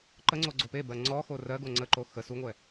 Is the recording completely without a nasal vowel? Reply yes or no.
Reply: yes